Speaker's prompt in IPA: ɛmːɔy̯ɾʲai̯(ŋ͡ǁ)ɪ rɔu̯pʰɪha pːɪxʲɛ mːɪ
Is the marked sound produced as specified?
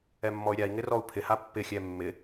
no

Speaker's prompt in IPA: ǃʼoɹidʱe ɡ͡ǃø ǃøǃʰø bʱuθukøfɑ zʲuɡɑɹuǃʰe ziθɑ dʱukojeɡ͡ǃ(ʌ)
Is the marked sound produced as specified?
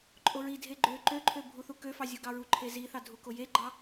no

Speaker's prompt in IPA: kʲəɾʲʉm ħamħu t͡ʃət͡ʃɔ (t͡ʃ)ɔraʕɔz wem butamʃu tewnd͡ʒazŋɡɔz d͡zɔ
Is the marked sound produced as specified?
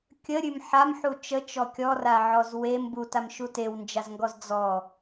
no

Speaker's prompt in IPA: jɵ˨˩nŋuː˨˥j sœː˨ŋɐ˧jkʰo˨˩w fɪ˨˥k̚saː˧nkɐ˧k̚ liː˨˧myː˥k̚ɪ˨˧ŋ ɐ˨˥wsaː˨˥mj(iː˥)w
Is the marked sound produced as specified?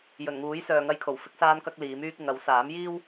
yes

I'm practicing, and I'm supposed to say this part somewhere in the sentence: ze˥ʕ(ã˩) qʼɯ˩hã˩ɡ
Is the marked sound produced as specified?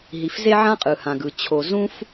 no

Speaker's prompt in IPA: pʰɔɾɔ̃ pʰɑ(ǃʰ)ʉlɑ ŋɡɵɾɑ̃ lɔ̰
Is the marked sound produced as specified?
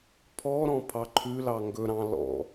yes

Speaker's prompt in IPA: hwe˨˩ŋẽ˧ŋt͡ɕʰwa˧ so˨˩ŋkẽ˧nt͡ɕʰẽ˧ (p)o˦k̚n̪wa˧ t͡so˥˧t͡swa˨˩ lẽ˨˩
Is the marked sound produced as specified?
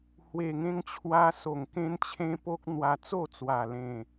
yes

